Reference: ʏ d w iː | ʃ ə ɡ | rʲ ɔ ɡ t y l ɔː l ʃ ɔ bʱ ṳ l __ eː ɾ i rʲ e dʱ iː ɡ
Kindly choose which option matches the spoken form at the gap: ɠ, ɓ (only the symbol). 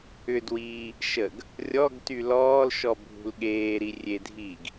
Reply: ɠ